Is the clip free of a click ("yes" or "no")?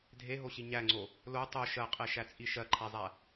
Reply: no